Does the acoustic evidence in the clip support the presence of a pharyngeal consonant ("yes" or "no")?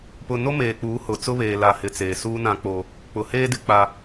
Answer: no